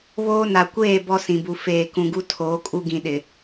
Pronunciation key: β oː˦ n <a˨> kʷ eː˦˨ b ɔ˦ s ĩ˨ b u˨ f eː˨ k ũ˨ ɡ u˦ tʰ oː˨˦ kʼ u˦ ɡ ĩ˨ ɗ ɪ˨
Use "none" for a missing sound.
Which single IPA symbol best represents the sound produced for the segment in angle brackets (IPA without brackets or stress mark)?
a˨